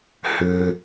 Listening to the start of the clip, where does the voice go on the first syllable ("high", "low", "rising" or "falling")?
low